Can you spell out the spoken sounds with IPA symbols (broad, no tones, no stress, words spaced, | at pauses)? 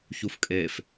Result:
çufkʼef